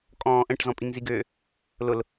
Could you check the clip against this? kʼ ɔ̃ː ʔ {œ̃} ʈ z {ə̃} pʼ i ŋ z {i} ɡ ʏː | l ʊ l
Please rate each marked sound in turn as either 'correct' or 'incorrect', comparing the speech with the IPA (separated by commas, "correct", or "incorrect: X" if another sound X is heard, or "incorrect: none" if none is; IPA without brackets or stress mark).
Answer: incorrect: ə̃, incorrect: ɔ̃, correct